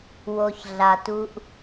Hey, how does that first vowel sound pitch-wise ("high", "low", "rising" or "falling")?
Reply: low